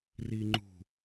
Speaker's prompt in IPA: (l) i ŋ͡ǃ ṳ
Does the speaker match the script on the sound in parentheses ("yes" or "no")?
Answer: no